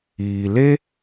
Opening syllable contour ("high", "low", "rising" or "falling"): low